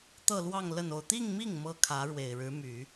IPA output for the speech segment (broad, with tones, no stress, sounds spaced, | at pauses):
t̪ ɤ˥˧ l w ɑ˥˧ ŋ l ə˥˧ n o˥˧ ʊ̯ t̪ i˥˧ ŋ m i˥˩ ŋ m ɤ˥ kʰ ä˧˥ ɻ w e˨˩ ɪ̯ ɻ ɻ̩˧˥ m y˨˩˦